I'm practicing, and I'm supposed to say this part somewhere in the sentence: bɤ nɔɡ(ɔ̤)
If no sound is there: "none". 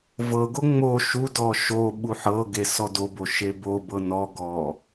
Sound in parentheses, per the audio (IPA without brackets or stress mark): ɔ